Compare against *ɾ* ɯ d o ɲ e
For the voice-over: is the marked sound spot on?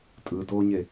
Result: no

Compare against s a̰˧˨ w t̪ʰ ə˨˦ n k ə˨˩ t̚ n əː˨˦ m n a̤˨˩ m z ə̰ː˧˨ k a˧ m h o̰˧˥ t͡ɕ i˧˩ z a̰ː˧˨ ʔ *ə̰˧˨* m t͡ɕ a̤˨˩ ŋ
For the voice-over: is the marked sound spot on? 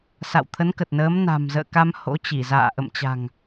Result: yes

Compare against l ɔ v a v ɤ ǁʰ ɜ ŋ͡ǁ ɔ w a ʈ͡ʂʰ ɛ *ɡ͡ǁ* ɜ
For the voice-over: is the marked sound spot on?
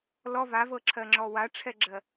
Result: yes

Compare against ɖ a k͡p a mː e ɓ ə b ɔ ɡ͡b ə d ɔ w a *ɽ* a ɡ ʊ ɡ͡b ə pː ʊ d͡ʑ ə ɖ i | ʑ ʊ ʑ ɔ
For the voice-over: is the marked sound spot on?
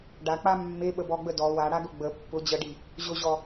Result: yes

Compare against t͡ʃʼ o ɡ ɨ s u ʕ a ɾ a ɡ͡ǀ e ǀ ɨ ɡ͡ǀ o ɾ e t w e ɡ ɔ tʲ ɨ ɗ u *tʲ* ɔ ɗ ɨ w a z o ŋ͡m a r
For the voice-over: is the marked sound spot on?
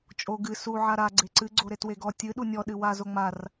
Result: no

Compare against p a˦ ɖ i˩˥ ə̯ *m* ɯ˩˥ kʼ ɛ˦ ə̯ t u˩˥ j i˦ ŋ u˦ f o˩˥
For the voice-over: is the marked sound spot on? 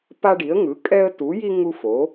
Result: no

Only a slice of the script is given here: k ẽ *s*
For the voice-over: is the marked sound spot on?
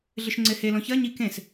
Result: yes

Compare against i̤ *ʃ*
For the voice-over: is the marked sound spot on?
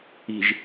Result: no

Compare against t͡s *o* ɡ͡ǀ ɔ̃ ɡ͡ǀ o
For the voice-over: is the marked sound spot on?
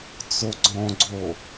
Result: yes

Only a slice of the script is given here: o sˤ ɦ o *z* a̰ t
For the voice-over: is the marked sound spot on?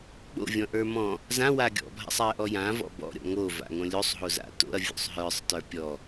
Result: yes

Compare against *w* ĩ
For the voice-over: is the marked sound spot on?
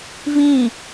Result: no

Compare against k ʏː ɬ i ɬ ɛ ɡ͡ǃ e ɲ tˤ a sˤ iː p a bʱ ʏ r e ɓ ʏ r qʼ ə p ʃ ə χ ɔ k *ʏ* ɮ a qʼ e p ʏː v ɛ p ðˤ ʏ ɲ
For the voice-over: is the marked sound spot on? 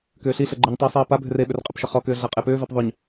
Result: no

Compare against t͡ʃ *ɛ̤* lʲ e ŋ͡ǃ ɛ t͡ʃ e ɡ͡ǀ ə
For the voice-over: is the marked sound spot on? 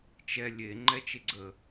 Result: no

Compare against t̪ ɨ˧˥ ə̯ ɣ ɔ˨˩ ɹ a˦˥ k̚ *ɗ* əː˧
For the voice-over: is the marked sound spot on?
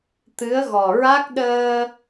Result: yes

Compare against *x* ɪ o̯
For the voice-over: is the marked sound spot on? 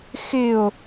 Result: yes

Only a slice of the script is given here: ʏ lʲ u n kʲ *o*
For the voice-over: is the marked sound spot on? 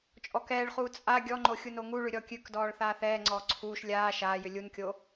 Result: yes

